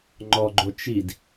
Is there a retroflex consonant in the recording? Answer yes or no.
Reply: no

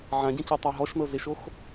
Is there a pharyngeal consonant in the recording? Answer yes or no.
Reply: yes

